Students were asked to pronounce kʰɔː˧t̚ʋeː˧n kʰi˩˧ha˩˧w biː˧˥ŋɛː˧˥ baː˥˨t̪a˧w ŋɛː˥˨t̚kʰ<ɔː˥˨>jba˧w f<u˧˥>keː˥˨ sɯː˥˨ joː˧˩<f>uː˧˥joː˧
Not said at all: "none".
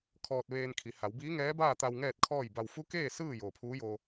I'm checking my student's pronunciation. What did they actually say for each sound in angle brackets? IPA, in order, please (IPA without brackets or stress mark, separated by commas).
ɔː˥˨, u˧˥, pʰ